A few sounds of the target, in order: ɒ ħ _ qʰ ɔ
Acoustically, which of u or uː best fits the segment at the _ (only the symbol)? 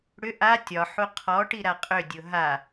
u